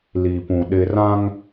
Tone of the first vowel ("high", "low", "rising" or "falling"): low